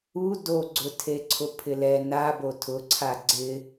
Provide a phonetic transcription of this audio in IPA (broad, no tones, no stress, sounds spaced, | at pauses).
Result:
u d o ɡ͡ǀ ʊ tʰ e ǀʰ ʊ pʰ ɪ l ɛ n a b o tʰ ʊ ǀʰ a ɡ͡ǀ ɪ